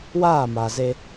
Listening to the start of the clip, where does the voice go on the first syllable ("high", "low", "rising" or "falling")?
falling